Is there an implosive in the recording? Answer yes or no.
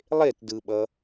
yes